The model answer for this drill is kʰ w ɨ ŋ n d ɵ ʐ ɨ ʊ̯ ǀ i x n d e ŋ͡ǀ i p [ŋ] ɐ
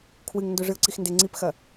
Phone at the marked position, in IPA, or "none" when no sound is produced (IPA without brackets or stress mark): x